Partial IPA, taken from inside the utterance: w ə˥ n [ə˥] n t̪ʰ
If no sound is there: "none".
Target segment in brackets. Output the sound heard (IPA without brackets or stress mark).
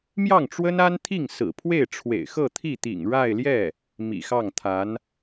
a˥